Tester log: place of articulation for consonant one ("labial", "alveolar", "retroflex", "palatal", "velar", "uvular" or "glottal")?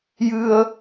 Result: palatal